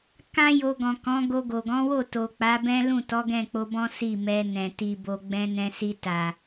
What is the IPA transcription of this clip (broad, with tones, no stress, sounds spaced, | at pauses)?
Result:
k ã˦ j o˧ ɡ ɔ̃˨ k ɔ̃˨˦ ɡ o˧ ɡ o˨ ɡ ɔ̃˨˦ w o˦˨ t o˨ k͡p a˨˦ b ɛ̃˦ l ũ˦˨ t ɔ˨˦ ɡ ɛ̃˦˨ k͡p o˧ b ɔ̃˦ s i˦˨ m ɛ˧ n ɛ̃˨ t i˨ b o˨ ɡ͡b ɛ̃˧ n ɛ̃˧ s i˧ t a˨